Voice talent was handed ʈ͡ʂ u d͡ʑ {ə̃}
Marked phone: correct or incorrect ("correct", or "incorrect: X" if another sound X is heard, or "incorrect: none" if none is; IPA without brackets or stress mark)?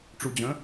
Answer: correct